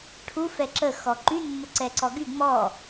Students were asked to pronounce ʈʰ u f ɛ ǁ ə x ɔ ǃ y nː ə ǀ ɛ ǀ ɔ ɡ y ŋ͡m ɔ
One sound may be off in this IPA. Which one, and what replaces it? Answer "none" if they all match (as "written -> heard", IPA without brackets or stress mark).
none